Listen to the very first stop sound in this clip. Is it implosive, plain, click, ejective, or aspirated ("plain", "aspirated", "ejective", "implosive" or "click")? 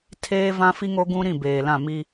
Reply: aspirated